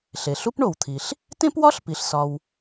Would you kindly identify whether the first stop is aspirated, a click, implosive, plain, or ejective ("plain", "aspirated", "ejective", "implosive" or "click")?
plain